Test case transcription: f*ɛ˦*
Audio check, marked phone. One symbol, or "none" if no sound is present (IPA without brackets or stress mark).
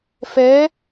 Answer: ɛ˨˦